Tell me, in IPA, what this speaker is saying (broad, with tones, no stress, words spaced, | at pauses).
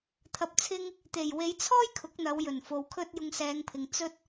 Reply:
t̪ʰɐ˧p̚t͡sʰɪ˥ŋ | t̪e˨˩j we˨˧jt͡sʰɔː˥j kʰʊ˨˥k̚ n̪ɐ˨˧wjɵ˨˩nfo˨wkʰɵ˥t̚ jʊ˧ŋsɛː˨˧ŋpʰɪ˨ŋ t͡sɵ˥t̚